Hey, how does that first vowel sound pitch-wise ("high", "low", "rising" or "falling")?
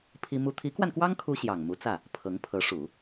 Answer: high